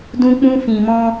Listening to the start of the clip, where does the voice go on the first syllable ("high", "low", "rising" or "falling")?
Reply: high